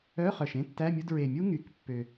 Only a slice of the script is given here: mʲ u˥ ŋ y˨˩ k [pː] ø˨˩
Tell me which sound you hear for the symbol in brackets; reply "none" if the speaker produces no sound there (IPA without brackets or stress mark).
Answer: pː